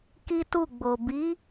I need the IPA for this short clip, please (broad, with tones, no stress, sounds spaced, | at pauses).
k i˦ t u˦˨ ɡ͡b o˨ b i˨˦